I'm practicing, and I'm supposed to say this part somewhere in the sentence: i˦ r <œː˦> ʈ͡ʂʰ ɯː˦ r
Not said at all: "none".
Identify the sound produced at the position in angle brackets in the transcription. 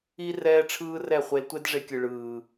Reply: ɛː˦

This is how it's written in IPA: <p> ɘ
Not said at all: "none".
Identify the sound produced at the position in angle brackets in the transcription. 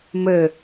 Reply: m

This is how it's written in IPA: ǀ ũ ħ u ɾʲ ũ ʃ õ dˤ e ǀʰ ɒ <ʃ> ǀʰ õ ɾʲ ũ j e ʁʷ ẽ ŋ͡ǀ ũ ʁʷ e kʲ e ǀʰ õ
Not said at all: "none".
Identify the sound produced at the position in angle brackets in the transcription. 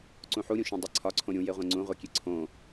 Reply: none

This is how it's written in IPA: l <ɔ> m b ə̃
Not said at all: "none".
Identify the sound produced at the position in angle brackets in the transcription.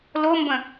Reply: o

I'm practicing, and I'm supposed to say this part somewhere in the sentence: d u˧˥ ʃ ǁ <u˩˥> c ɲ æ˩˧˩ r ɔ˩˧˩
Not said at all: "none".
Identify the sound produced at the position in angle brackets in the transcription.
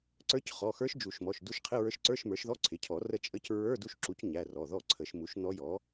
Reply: u˩˥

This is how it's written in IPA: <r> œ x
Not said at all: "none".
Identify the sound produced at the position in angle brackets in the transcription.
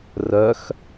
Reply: r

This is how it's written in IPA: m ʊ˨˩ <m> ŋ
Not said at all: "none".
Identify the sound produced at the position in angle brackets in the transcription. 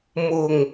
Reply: none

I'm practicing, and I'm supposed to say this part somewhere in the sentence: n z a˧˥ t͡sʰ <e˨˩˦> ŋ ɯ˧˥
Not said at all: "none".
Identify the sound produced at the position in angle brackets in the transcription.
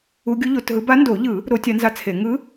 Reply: e˨˩˦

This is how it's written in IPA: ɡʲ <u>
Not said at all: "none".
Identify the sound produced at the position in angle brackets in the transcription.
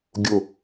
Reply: ʊ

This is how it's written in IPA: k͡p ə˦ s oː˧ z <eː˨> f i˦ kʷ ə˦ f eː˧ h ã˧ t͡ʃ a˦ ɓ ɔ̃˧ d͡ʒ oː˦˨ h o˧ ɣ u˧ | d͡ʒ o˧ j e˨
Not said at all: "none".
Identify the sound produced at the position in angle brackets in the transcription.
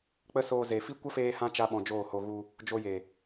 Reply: e˨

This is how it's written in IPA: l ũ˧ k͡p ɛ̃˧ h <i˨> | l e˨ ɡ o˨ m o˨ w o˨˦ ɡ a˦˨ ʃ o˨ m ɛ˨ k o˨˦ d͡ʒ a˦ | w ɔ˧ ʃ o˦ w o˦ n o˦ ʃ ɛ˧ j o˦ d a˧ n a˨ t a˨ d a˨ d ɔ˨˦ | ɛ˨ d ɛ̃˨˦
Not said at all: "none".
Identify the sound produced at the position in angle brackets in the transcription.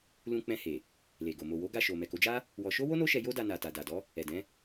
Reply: e˨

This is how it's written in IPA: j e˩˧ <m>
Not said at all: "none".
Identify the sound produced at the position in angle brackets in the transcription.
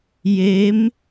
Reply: m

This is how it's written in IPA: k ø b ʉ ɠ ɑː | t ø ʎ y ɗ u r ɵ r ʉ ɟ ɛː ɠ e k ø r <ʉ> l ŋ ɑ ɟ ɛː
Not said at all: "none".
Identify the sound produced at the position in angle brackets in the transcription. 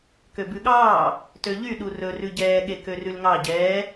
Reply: ʉ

